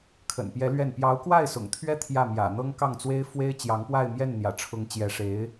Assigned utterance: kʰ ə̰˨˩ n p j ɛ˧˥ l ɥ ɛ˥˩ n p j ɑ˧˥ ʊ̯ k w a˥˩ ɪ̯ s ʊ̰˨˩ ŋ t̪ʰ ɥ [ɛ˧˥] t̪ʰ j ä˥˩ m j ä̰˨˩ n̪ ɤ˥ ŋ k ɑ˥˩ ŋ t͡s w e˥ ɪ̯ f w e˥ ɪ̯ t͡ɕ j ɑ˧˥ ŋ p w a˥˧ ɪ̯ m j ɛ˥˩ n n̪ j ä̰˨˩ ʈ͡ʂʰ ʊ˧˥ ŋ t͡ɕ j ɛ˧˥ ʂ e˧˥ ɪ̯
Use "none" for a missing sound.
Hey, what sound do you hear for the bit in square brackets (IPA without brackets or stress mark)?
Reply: ɛ˥